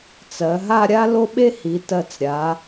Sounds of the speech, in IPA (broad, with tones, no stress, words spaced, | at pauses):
t͡sɜ˩˧ɦa˥˧ɾʲa˥ lo˥ɓe˥hi˩˧ tɜ˧˩t͡sɾʲa˩˧